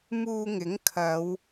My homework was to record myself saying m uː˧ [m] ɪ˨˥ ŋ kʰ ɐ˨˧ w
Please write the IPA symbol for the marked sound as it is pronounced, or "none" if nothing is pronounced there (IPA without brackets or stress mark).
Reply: ŋ